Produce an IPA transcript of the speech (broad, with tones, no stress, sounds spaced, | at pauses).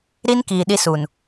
ɾ i˦ n k iː˨ ɗ i˦ s u˨ n